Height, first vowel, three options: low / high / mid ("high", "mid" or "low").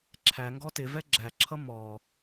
low